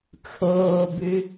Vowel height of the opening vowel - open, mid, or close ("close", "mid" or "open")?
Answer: mid